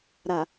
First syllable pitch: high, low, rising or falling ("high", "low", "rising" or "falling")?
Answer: low